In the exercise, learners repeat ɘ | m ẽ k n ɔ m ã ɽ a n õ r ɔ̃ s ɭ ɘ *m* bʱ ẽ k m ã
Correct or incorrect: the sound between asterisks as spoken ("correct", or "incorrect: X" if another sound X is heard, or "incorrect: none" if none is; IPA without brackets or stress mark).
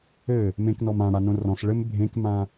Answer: correct